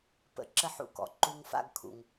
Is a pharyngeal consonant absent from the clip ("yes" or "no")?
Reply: no